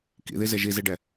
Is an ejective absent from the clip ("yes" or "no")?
yes